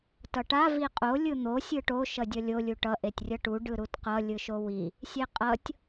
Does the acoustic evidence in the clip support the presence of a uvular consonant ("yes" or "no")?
yes